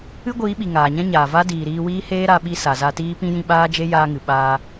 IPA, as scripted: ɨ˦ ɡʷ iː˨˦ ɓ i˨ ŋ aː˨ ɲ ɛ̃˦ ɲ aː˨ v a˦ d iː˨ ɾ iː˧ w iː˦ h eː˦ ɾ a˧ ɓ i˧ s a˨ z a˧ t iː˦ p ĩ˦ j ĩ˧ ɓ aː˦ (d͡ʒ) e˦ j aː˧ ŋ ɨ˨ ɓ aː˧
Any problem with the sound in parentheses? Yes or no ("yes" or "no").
no